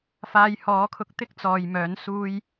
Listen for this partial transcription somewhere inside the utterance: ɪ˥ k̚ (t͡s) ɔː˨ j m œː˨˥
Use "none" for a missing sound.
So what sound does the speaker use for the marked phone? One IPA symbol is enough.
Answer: t͡s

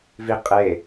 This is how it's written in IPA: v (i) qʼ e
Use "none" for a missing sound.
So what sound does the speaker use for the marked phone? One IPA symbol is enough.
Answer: i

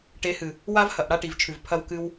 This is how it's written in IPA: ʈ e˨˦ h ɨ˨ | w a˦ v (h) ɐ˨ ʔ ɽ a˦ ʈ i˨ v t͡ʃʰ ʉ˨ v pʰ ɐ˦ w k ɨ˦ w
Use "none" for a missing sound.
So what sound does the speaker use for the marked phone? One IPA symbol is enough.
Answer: h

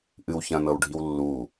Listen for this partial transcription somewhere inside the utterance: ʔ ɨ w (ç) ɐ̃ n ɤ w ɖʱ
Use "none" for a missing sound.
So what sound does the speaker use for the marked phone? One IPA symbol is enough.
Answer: ç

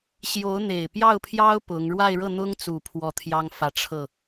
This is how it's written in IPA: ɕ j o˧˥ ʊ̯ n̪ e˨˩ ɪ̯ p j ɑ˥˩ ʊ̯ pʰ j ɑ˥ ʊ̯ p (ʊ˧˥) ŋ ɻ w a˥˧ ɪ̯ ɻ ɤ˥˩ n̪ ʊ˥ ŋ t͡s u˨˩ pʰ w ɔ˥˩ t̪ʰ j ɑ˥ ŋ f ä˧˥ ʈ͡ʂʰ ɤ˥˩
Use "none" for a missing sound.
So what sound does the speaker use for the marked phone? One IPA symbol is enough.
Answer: ʊ˧˥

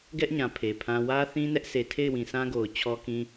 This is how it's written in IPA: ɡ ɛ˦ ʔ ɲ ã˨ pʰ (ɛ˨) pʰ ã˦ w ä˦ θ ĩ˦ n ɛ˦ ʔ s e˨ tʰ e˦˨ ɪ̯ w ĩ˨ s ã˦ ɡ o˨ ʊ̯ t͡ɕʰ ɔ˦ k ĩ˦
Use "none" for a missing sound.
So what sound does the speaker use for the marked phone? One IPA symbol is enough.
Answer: e˨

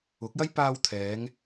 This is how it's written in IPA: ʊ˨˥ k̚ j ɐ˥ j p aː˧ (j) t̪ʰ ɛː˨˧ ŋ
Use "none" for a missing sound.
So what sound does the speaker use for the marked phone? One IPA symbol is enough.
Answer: w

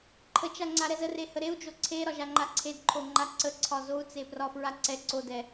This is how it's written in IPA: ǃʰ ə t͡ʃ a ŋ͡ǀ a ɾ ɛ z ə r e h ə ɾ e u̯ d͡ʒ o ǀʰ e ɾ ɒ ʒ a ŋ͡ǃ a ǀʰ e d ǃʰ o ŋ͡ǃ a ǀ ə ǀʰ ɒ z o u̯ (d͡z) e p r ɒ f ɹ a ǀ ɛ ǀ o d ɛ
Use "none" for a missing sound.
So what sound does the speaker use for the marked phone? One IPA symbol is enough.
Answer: t͡s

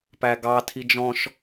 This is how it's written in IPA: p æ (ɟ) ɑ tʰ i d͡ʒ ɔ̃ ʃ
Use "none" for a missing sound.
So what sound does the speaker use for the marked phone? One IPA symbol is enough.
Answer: ɡ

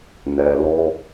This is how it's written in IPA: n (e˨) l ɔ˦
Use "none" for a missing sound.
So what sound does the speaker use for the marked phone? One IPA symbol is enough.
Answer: ɛ˨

